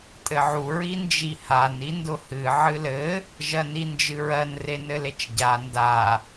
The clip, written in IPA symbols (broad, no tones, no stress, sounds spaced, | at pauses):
tʼ ɘ ʕ u ɹ i n d͡ʒ i h a n i n d ʊ h ɨ ʕ ɨ l ɘ | ʒ ɜ n i n d͡ʒ ɨ ɹ ɜ n r e n ɘ l e t͡ʃ ɟ a n d a